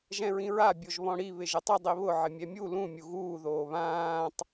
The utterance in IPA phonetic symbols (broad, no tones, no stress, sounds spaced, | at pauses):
ʒ ɛ̃ ɹ ĩ ɹ a bʲ o ʒ β ɔ̃ ɽ i β ɪ ʒ ɪ tˤ ɪ dˤ i β ʊ ʕ ɪ mʲ ɛ mʲ u l ũ mʲ u ɣ uː ð oː β ãː tˤ